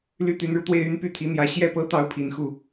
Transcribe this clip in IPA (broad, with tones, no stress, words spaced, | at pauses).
ly˥t̪y˧˥nɻu˧ t̪we˥˩ɪ̯y˥n py˥˩t̪ʰi˧˥n̪jä˧˥ ɕjɛ˥˩pɤ˥t̪ɑ˧˥ʊ̯ pʰi˨˩nxu˥˩